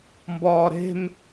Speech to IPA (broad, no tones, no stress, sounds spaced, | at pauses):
m b ɒː ɾ e̤ m